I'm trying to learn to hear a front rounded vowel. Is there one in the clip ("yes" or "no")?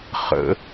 no